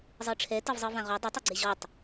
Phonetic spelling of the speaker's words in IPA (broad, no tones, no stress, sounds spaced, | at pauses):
zˤ ɯ ʈ͡ʂʰ ɛ t ɤ v zˤ ɯ v ã ʁ o dˤ ɤ tˤ ɯ ɡ͡ǀ e ʑ ɔ tˤ